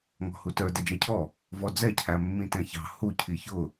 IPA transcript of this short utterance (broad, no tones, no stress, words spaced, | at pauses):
ŋɔ̤hutə˞ dɛd͡ʒæcʰɔ | vɔd͡zɛ cʰæmːĩtɛ̃çɑ̤ hu cʰiçʊ